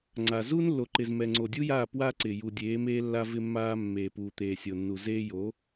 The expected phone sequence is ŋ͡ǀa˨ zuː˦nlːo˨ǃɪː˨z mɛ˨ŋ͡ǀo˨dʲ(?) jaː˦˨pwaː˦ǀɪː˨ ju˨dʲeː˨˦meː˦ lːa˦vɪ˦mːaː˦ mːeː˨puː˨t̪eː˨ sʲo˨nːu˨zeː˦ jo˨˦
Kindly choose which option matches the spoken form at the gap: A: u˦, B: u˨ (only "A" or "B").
A